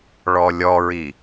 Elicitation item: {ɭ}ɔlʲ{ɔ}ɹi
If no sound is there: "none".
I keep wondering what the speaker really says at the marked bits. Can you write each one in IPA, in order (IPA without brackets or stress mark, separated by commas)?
ɭ, ɔ